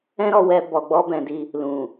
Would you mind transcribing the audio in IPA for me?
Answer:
ɛ̃˦ ɾ ɔ˧ w ɛ˧ b ɔ˨ ɡ͡b ɔ˧ b ɛ̃˨ d i˧ | l ũ˨

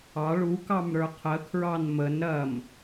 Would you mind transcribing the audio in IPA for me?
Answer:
ɑ ɭ u k ɑ m ɾ ə˞ qʰ ə kʰ ɹ ɑ n m ə n ɾ ɐ m

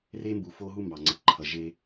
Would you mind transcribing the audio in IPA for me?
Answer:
r e˦ m b u˨ f o˦ ɦ u˦ m b ɑ˨ ŋ͡ǀ ʌ˨ ǃʰ ʌ˨ ʒ e˦

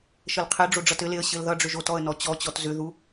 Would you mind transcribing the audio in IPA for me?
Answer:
ʃ ə l qʰ e ɖ͡ʐ o ɖ͡ʐ ʌ t ɘ l e ə̯ ɕ ɘ l ð ʌ ɖ͡ʐ ʏ ʒ o t ɔ ə̯ n ɔ t͡ɕ ɔ t͡ɕ ɔ t z ʏ ð u

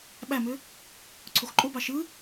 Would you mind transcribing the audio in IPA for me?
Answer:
ɓ æ m ø | ǀʰ o x ǃʼ o b ɑ ʃ ɯ

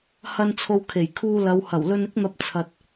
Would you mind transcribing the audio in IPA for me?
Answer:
h ɐ˧ n t͡sʰ o˨ w kʰ e˨˩ j kʰ uː˧ l ɐ˨˧ w h ɐ˨˩ w l ɵ˧ n ɪ˥ k̚ n̪ ɐ˧ p̚ t͡sʰ ɐ˨ t̚

